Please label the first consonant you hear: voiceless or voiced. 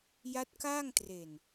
voiced